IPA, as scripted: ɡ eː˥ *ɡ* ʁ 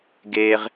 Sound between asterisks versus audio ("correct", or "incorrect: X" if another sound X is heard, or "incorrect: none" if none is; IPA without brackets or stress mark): incorrect: none